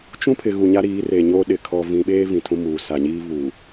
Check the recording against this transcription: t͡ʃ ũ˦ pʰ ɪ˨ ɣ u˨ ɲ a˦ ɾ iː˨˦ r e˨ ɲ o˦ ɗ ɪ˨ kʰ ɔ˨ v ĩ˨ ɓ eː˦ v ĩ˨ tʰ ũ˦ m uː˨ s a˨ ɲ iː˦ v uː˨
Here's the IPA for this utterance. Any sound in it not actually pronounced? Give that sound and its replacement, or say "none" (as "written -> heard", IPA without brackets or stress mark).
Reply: none